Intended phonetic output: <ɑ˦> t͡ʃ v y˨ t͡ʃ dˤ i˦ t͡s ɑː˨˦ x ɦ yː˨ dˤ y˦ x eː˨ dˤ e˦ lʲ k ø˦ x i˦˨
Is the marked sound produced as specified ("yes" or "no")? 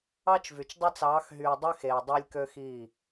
yes